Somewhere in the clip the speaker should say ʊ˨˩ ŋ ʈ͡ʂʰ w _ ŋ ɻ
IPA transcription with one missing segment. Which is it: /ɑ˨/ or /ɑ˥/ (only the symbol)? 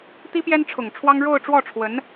ɑ˥